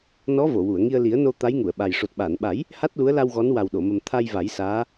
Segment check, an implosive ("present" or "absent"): present